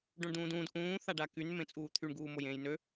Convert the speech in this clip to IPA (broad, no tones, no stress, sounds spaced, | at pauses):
ɖ õ ɳ d ũː d ũː d ʔ ũː θ a ɖ a k y n m ẽ t͡sʼ uː t̪ʰ y ɳ ɡ uː m o j ẽː j n ø